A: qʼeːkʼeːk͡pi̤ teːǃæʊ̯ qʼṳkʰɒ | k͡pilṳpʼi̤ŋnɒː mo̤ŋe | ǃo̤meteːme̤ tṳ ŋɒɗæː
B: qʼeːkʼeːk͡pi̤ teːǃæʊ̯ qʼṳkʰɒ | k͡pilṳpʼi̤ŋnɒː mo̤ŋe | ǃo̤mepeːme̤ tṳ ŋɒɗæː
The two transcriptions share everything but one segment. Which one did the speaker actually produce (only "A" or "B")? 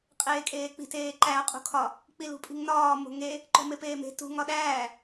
B